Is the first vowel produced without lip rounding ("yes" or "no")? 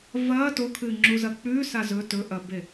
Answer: yes